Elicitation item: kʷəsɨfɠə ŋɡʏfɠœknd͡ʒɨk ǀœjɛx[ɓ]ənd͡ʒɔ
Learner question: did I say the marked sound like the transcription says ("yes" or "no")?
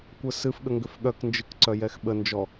yes